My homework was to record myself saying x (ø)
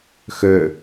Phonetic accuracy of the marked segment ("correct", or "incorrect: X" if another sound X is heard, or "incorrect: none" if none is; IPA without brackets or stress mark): correct